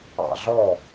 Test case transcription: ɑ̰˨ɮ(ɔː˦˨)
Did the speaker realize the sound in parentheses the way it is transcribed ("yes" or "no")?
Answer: no